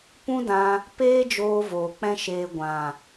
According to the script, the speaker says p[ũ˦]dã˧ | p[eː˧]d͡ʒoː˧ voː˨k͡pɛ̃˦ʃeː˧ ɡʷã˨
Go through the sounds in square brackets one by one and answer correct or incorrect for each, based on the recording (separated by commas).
correct, incorrect